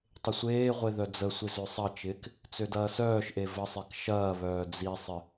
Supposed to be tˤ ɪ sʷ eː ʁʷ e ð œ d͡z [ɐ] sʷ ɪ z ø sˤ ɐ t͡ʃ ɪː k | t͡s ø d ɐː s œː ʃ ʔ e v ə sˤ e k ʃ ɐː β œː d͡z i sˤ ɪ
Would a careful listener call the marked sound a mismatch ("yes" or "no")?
yes